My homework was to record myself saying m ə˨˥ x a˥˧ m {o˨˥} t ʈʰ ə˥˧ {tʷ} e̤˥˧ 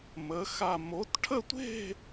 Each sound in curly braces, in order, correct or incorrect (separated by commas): correct, correct